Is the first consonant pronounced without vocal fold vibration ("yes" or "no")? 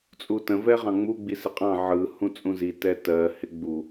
yes